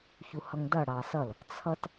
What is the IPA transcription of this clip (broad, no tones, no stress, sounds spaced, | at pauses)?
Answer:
ç u h ʌ ŋ d ʌ ɽ ɑ s ʌ l | t͡sʰ ʌ t